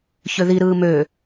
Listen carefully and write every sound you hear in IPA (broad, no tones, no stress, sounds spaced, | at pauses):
ç ø ð i ɾ ɯː m ø